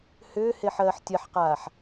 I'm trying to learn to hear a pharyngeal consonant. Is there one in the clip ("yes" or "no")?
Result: yes